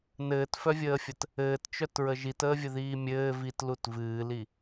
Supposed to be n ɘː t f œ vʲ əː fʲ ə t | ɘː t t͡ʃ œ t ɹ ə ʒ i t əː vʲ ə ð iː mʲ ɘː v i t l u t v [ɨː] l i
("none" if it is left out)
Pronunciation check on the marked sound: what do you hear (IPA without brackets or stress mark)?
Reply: ɨː